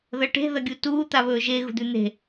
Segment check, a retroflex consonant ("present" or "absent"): present